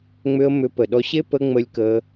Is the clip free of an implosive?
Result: no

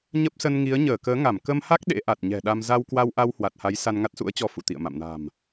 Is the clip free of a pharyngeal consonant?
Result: yes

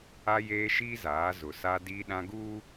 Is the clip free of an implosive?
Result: no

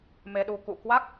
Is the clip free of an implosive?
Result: no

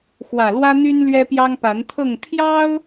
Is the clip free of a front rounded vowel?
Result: no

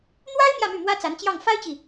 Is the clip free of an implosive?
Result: yes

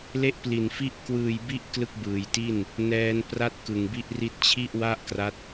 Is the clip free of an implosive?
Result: yes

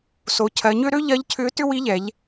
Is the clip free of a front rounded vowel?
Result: no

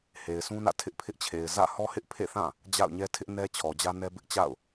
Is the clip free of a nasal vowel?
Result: no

